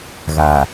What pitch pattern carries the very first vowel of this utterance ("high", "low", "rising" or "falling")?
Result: low